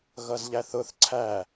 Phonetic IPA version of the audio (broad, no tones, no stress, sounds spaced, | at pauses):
ɣ ʌ z ʎ æ θ ʊ θ ǀʰ æ